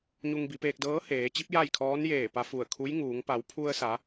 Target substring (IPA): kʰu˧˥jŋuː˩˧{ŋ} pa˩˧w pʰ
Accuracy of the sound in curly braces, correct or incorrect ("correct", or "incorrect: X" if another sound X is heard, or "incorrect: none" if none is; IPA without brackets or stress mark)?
correct